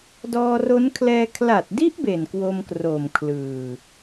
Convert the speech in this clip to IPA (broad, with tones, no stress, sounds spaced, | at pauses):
d ɔː˧ r o˦˥ n kʰ l ɛː˧ kʰ l a˨˩ t̚ d i˦˥ ʔ b e˨˩ n k w o˧ m k r oː˨˩ m kʰ l ɯː˨˩